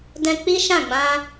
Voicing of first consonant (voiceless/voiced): voiced